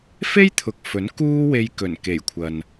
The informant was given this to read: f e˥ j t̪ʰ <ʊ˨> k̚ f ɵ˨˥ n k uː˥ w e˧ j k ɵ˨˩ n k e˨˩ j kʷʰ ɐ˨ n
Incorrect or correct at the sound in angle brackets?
correct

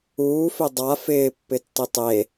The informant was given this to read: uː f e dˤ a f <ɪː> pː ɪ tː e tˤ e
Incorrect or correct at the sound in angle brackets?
correct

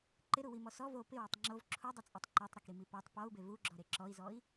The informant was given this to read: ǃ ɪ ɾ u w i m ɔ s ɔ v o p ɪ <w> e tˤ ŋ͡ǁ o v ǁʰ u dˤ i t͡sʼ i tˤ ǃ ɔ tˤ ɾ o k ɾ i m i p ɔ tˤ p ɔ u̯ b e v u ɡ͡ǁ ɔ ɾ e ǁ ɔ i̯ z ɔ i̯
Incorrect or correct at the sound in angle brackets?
correct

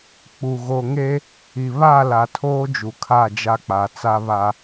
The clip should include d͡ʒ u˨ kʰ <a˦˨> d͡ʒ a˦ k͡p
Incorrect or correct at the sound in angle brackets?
correct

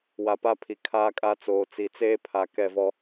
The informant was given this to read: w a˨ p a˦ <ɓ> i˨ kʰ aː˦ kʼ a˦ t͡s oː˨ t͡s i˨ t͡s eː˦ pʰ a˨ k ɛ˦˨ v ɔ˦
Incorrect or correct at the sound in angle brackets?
incorrect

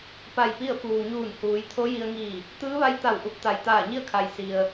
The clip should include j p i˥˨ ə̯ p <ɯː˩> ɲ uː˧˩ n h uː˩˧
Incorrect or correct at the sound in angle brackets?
incorrect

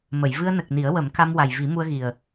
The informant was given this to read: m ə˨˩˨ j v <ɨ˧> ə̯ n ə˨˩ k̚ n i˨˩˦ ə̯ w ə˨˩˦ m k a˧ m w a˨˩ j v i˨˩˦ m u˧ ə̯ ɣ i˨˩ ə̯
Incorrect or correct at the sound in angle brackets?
correct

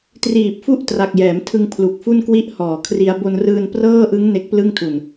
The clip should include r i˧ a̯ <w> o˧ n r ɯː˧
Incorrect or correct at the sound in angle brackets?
incorrect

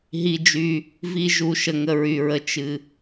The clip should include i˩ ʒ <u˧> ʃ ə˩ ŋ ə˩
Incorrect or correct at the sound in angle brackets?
incorrect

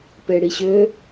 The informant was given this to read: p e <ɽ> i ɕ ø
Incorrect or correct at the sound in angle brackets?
correct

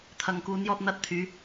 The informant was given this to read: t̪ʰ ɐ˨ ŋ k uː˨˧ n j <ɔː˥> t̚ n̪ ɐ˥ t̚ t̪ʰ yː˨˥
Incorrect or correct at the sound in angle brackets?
incorrect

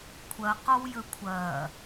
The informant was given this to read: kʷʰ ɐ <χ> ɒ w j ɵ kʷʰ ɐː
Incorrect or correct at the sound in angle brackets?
incorrect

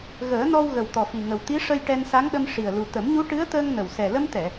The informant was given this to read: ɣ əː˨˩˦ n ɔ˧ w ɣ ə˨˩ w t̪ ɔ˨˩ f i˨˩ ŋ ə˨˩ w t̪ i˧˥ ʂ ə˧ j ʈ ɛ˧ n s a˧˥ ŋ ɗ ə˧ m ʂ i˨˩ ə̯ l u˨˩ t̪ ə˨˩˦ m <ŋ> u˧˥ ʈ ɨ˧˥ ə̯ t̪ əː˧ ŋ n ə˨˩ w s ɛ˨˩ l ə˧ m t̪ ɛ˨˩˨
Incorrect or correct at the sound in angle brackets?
incorrect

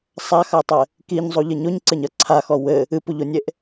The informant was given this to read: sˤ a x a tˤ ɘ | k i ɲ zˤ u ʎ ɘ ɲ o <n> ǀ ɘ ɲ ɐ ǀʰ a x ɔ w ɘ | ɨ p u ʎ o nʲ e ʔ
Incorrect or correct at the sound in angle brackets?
incorrect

